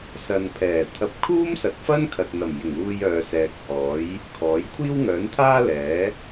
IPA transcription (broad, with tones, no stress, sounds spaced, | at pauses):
s ɐ˨ n pʰ ɛː˨˩ t̪ʰ ɐ˧ p̚ kʰ uː˥ m s ɐ˨ t̚ f ɐ˥ n kʰ ɐ˨ t̚ n̪ ɐ˨˩ m j ɪ˨˩ ŋ uː˧ j œː˨ s ɛː˨ k̚ h ɔː˨˥ j | kʰ ɔː˨˥ j kʷʰ iː˥ w ŋ œː˨˥ n t̪ʰ aː˥ l ɛː˨˥